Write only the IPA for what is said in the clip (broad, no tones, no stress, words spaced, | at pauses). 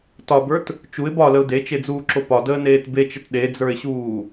tɒbə˞t | t͡ʃuɪ̯ bɒləʊ̯ det͡ʃed͡zuːǁo pɒdəːneːt bet͡ʃət ɗed͡zə˞ɪ̯ɕuː